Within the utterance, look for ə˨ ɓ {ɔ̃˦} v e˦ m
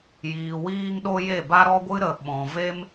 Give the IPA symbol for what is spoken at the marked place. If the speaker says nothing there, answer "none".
ɔ̃˨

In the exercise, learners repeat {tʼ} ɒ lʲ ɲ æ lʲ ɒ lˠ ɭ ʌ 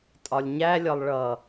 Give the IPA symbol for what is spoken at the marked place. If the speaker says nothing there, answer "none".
tʼ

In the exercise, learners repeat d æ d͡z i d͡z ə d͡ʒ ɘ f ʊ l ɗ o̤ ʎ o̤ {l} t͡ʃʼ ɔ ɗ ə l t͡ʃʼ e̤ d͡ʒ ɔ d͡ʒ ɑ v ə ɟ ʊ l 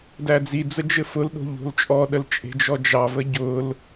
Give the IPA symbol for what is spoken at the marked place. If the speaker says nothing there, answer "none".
l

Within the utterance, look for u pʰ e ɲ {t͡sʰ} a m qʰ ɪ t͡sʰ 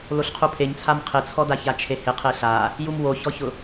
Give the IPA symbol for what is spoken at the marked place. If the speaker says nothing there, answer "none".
t͡sʰ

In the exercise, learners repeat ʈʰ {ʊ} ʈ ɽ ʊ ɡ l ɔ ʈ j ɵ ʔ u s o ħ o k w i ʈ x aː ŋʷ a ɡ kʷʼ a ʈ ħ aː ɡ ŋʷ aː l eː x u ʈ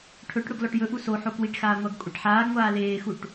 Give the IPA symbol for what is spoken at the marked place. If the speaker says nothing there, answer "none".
ɵ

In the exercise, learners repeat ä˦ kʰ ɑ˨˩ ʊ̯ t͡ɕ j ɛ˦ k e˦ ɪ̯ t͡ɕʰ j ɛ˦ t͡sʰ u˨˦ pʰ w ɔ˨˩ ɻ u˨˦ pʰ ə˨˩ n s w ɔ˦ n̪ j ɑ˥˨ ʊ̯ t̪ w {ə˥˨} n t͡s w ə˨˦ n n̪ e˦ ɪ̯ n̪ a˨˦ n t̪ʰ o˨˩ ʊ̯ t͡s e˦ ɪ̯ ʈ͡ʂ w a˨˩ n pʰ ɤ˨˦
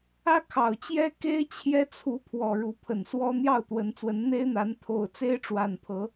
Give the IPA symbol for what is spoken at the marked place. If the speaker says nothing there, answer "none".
ə˨˦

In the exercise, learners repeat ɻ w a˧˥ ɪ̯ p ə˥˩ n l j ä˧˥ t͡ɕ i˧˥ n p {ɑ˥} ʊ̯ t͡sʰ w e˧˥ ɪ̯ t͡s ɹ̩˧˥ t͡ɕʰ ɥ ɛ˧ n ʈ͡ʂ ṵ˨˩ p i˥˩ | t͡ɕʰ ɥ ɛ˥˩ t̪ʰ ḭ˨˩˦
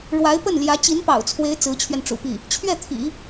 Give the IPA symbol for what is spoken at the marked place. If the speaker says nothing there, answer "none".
ɑ̰˨˩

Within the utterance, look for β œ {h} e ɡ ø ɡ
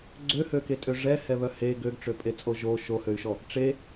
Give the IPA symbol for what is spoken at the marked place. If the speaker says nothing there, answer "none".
h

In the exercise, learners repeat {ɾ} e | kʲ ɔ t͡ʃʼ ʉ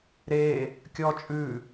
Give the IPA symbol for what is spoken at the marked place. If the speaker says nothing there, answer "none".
ɾ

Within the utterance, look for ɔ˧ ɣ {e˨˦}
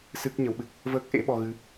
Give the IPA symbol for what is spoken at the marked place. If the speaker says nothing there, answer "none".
ɨ˨˦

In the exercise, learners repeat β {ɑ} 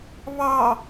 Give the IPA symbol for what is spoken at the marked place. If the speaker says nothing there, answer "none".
ɑ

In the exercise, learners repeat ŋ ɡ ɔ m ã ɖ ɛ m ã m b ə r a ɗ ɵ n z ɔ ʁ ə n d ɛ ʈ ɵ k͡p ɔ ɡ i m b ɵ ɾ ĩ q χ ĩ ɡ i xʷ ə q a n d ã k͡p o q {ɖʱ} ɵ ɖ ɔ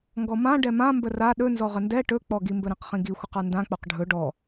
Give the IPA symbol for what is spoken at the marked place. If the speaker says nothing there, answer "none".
ɖʱ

